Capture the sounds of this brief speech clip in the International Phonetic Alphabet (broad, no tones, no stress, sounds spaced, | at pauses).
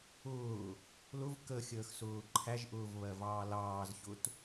ʊː | l ʊ v k ə xʲ əː x s ʊː ǃʰ æ ʒ ʔ ʊː v β ɜ v ɑː l ɑː z ç ʊ t